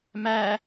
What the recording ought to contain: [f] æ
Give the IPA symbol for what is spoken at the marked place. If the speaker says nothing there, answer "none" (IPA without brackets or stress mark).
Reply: m